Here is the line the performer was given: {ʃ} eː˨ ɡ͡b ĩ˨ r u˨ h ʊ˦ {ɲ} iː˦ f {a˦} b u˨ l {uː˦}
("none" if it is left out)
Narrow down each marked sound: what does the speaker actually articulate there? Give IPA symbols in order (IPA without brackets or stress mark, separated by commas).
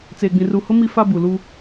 t͡s, m, a˦, uː˦